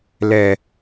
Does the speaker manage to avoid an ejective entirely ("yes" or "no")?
yes